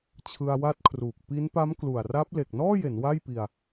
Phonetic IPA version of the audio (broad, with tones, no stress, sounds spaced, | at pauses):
t͡ɕʰ ɯ˧ a̯ w a˦˥ t̚ kʰ r uː˨˩ k̚ p i˦˥ n p a˦˥ m k l u˨˩ a̯ r a˦˥ p̚ l e˨˩ k̚ n ɔː˥˩ j e˩˦ n w a˥˩ j p i˧ a̯